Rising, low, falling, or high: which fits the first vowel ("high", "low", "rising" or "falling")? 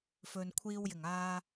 low